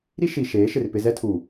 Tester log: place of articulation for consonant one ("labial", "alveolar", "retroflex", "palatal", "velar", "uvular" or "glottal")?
alveolar